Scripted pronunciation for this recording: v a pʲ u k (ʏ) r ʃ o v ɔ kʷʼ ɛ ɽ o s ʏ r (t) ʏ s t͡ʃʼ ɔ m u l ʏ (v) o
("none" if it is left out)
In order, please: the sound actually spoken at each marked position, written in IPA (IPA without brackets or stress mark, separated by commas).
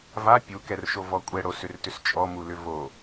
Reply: ɛ, t, v